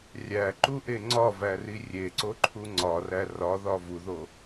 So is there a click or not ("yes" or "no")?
yes